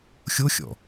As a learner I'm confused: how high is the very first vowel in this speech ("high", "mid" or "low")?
mid